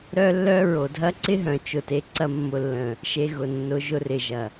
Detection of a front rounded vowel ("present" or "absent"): present